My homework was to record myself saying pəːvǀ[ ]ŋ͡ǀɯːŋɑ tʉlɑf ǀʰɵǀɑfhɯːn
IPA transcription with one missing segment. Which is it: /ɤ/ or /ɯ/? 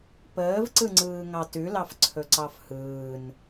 ɯ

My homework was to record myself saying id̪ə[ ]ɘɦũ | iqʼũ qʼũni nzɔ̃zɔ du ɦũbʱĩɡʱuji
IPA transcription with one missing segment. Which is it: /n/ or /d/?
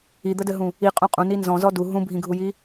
d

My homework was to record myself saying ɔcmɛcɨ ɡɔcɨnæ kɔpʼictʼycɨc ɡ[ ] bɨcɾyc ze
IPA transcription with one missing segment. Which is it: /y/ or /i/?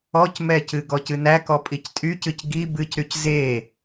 i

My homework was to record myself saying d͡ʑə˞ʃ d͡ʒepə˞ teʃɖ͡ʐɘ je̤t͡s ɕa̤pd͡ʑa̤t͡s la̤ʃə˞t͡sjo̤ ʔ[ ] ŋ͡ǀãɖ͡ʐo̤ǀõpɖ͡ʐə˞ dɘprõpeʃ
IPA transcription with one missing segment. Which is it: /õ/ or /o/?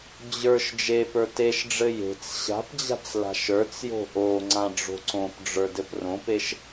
o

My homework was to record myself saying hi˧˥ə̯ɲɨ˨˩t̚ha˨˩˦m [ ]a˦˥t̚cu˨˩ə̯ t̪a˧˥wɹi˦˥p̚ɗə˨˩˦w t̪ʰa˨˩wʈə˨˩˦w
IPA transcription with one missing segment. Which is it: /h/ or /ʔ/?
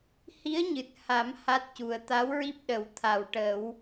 h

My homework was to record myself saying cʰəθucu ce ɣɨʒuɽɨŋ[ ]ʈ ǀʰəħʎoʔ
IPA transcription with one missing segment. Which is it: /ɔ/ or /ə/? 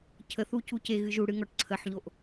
ɔ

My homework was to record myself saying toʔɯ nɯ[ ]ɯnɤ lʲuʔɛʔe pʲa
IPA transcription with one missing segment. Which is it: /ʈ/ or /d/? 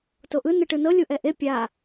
ʈ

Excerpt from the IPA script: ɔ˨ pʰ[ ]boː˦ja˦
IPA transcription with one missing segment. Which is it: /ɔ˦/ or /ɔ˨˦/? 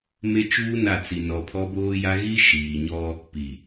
ɔ˦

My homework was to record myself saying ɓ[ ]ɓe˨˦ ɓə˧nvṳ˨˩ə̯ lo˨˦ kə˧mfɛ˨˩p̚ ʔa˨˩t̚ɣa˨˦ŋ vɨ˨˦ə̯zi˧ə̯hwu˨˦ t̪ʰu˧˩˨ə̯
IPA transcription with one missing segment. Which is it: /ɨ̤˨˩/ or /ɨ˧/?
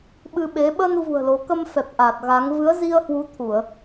ɨ˧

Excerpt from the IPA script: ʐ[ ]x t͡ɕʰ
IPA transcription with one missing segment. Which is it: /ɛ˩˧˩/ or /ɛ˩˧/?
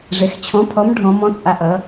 ɛ˩˧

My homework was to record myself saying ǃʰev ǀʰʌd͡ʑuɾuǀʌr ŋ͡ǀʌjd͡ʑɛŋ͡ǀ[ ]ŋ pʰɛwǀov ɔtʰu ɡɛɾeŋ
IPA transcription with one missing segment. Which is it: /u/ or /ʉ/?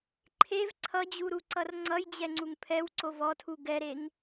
u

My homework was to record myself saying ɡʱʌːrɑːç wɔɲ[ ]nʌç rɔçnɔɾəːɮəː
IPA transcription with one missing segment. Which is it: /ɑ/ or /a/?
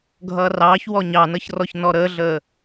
ɑ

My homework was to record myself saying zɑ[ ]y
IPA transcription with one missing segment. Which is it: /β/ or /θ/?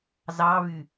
β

